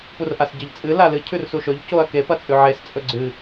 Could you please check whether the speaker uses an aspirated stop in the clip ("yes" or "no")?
yes